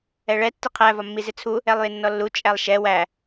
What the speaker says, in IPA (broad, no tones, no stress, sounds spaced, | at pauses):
ɛ ɭ ɛ tː ɪ qʰ æ v ɒ mː i z ɪ t͡sʰ u | ɛ lˠ j ɪ nː ɔ lː u t͡ʃʼ æ lˠ ʃ ɛ w æ